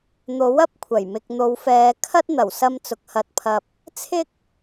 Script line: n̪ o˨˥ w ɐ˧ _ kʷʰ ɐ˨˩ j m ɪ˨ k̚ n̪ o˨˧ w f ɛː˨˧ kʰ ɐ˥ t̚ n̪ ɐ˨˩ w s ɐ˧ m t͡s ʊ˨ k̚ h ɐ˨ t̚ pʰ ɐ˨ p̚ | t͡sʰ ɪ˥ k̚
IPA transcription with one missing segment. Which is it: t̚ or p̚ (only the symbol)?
p̚